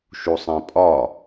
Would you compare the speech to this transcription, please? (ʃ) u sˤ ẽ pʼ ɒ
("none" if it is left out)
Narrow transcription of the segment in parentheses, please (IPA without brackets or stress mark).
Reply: ʃ